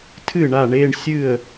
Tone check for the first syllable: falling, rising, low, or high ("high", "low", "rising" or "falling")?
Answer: falling